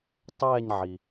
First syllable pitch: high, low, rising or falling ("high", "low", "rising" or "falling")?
falling